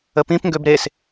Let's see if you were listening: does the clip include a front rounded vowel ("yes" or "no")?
yes